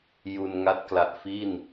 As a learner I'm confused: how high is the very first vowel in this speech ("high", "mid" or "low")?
high